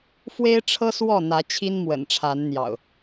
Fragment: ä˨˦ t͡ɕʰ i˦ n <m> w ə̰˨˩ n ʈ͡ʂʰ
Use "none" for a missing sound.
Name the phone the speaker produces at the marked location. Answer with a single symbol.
m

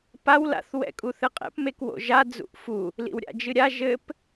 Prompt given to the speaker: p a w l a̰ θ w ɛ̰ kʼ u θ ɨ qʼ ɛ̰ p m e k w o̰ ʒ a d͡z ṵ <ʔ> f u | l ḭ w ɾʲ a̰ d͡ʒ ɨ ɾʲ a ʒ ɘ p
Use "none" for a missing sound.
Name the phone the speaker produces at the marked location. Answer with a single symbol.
ʔ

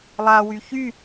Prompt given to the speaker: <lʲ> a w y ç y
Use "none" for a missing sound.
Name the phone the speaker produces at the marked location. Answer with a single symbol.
lˠ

